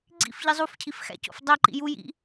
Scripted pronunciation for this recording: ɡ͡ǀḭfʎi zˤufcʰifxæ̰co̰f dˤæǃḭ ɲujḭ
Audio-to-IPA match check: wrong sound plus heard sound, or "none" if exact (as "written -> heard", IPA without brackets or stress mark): ɲ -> j